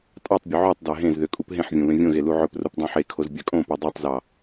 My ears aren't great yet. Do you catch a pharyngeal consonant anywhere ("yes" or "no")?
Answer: yes